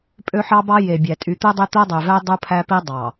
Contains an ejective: yes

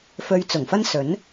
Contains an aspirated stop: no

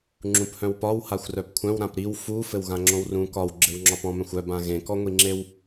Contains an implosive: no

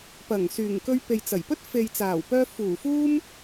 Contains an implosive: no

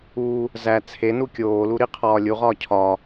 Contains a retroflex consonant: no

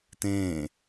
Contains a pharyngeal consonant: no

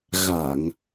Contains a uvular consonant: no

